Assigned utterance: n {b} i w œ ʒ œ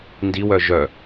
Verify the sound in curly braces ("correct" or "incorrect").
incorrect